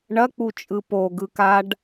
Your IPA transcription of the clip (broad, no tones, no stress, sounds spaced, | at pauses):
ɳ ɐ k͡p u t͡ʃʼ ɯ p o ɡ ɯ k a ɖ